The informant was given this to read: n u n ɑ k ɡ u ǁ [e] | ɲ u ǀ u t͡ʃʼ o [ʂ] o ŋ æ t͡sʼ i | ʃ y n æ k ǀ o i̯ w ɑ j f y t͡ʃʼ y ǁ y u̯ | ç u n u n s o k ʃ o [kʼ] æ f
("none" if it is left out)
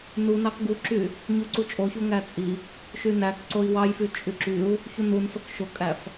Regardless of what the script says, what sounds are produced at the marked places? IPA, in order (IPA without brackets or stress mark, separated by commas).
y, ç, kʼ